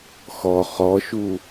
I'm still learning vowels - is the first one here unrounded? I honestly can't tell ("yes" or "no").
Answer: no